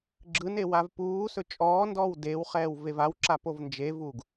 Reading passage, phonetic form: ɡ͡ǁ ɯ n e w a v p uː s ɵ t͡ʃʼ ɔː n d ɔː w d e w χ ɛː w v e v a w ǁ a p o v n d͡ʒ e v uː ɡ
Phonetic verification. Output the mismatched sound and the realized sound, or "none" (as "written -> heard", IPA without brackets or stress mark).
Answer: none